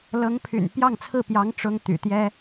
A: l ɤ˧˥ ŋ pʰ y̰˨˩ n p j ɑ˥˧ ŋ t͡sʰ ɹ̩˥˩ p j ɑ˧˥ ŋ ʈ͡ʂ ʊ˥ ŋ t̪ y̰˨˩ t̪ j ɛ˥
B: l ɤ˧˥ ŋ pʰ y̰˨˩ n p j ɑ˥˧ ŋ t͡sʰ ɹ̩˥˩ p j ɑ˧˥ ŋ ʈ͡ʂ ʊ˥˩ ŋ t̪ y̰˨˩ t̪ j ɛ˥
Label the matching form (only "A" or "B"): A